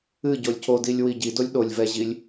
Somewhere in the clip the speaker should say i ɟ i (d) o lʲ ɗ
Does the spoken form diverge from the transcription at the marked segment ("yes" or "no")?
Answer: no